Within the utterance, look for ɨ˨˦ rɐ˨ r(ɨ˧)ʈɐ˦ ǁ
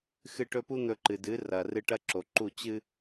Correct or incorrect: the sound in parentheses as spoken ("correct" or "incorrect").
correct